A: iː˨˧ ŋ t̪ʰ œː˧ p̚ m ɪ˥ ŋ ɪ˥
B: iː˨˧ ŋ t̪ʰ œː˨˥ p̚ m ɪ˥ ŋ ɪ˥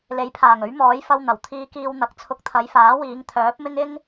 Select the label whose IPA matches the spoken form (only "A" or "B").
B